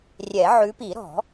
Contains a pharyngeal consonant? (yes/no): yes